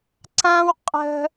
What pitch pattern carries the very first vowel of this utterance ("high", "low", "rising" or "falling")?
high